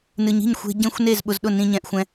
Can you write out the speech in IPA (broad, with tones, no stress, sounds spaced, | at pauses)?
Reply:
n ɨ˧ ɲ i̤˥˩ ɲ xʷ e̤˧ ɟ ẽ˥˩ xʷ n e˥˩ z ɓ ʊ˧ z ɗ ʊ˥˩ n ĩ˧ ɲ ɛ̃˧ ʔ xʷ ɛ̃˧